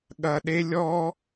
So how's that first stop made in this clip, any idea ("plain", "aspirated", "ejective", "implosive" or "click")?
implosive